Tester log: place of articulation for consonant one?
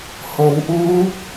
glottal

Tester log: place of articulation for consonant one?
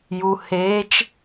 palatal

